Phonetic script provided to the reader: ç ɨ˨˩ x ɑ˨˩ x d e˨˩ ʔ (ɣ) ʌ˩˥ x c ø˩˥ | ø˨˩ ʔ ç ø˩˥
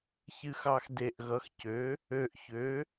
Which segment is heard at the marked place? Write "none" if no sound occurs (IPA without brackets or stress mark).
ɣ